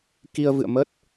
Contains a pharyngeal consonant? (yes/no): no